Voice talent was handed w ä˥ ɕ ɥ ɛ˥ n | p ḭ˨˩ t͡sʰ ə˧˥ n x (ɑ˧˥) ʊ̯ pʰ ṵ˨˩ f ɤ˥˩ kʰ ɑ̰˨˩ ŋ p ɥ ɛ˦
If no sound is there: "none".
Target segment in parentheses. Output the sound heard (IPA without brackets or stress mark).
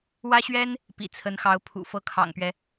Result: ɑ˧˥